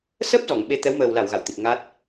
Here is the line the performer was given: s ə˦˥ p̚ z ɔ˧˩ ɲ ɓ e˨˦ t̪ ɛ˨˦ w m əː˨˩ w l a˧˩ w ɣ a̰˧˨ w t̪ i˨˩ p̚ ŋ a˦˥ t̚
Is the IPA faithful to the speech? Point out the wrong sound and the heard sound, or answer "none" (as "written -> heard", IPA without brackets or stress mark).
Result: ɲ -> ŋ